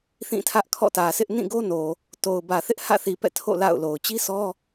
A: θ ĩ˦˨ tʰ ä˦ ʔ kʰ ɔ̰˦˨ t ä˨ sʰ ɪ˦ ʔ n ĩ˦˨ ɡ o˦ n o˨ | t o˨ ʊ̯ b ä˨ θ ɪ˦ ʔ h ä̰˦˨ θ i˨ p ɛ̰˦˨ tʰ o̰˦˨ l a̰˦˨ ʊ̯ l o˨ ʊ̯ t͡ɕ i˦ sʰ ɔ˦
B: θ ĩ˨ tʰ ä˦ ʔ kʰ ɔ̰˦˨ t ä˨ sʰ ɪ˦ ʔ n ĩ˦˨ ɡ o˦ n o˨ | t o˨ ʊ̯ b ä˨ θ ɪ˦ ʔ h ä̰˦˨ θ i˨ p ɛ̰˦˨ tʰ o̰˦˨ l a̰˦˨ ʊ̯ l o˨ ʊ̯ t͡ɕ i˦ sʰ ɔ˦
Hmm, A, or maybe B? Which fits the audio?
A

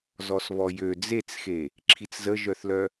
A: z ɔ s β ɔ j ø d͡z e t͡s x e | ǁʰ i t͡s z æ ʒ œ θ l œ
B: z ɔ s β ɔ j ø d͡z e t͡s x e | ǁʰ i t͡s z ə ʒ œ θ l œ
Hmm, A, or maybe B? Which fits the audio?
B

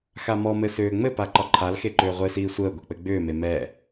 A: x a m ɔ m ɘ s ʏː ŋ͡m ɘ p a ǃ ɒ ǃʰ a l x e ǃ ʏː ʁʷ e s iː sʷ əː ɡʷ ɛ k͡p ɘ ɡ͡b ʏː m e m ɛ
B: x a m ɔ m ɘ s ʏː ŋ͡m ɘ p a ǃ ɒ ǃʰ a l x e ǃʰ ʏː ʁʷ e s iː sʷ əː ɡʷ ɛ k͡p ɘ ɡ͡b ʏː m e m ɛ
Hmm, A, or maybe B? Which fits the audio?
A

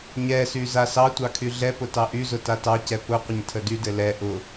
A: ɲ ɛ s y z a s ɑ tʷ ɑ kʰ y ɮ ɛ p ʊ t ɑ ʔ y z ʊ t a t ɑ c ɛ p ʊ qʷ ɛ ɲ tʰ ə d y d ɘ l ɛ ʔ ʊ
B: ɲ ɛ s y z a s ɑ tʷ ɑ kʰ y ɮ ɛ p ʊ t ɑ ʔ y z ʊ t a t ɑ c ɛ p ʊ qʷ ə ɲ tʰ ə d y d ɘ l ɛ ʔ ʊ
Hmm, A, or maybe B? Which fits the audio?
B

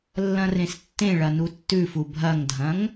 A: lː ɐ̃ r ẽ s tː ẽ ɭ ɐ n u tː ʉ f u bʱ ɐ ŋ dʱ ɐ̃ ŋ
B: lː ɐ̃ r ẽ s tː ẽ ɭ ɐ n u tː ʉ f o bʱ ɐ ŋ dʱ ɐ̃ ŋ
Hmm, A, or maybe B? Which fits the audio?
A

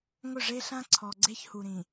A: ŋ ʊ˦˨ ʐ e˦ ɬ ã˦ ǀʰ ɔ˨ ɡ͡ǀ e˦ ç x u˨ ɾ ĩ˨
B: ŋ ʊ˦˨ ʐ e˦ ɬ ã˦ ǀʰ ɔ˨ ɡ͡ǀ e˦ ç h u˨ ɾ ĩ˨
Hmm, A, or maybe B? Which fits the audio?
B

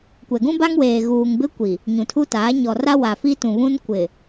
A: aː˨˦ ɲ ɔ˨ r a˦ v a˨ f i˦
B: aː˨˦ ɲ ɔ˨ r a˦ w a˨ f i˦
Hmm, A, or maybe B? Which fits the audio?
B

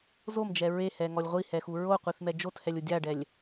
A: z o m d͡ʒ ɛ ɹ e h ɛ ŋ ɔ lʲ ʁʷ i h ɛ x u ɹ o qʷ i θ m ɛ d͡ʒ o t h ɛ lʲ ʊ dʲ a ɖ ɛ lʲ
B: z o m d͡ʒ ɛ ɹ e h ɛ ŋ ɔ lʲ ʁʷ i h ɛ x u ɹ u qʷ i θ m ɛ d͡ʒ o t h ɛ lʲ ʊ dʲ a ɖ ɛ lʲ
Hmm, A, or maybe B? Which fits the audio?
A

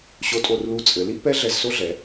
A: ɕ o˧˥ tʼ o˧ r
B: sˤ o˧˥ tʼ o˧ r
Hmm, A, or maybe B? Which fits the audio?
A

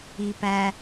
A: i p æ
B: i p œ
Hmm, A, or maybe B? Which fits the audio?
A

